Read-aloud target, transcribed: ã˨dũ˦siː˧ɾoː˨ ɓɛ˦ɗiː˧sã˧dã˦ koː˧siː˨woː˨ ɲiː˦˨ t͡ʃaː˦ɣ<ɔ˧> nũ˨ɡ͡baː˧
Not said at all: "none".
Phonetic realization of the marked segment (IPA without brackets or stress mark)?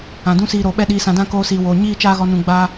ɔ˧